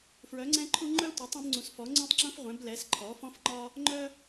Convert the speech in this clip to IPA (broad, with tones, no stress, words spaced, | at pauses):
fɹœ˩˥ŋ͡ǀɛ̃˥ǃʰu˥ ŋ͡ǃœ˥tʷa˩˥tˤ ũ˩˥bŋ͡ǀũ˩˥sfɔ˩˥ ŋ͡ǀũ˥tˤŋ͡ǁũ˥fʁʷɛ̃˩˥blɛ˩˥s ǃʰɔ˩˥fɔ̃˥fŋ͡ǃɒ˥ | ŋ͡ǃœ˥